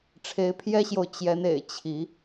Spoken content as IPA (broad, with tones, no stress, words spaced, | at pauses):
ʈ͡ʂʰe˨˦ɪ̯pʰjɛ˦ɕjo˨ʊ̯ t͡ɕjɛ˨˦nḛ˨˩ɪ̯ t͡ɕʰi˨˦